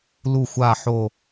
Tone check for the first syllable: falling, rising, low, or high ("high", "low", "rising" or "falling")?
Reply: falling